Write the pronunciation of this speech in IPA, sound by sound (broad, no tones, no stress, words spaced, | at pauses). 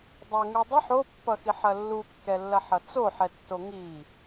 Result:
dˤɐŋu dˤɘħ opːʌxiħɐ lːukːɛlːɐħʌ t͡soħɛtːo ŋi